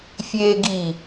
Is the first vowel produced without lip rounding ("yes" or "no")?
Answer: yes